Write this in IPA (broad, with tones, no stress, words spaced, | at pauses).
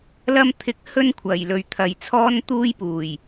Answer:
lɐ˧mt̪ʰɪ˨˥k̚ hɵ˥nkʷʰɐ˨˩jlɵ˨˧ɥ t̪ʰɐ˨jt͡sʰɔː˥nt̪uː˥jpuː˨˩j